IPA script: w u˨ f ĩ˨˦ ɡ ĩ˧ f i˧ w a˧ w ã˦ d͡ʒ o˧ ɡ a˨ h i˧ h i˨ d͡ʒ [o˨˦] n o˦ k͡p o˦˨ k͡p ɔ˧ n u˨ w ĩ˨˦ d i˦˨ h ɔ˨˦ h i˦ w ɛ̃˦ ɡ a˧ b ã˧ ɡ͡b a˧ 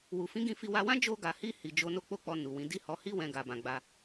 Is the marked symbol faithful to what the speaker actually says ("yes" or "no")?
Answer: yes